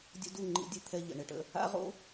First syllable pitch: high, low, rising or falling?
high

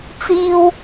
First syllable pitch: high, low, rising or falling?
high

